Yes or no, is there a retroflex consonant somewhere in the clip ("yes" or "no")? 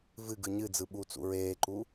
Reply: no